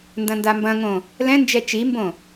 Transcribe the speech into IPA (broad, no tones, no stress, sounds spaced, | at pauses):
n d ɐ̃ n d a m b ɐ̃ ŋ õ | l ɛ̃ n d͡ʒ ɛ t͡ʃ i m b õ